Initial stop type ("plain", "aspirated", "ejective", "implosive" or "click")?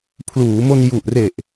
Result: aspirated